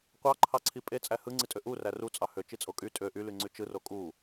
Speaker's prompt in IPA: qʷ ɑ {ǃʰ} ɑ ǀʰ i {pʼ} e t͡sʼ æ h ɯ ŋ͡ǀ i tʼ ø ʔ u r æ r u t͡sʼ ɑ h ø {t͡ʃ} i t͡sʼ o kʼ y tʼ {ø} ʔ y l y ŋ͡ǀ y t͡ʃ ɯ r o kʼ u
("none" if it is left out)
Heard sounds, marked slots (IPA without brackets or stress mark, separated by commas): ǃʰ, pʼ, t͡ʃ, ø